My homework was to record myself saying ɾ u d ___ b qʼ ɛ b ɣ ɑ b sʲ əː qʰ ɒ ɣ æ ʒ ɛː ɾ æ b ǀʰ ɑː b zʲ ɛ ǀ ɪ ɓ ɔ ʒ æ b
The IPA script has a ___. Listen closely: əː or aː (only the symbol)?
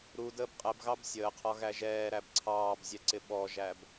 əː